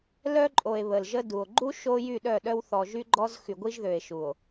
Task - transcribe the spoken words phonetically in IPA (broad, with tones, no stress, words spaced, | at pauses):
lœ˦ǃʼo˨e̯ βə˨lʒə˦du˨o̯ ɡ͡ǃu˦ ʃo˦jy˦˨ ɗœ˦˨ɗœ˦w θɔ˨ʒy˦ɡ͡ǃɔ˦z xy˨ɡʷi˦ʒðø˨e̯ʃu˨o̯